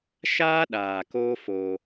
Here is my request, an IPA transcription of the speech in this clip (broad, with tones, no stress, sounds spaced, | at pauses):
ʃ aː˦ ɗ aː˨ k oː˦ f o˧